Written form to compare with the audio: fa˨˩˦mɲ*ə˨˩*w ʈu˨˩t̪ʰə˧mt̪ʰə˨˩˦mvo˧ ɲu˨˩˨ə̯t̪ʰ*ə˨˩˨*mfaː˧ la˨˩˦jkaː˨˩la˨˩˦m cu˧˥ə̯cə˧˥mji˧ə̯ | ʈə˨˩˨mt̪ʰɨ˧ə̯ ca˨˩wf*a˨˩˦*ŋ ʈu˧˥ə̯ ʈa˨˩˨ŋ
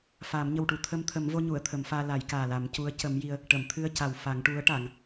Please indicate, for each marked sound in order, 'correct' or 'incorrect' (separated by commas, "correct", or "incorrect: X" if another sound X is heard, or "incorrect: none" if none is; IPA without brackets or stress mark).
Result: correct, incorrect: ə˨˩˦, correct